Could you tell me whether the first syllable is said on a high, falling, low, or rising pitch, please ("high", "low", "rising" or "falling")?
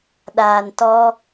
low